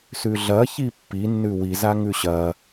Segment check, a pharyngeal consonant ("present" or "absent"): absent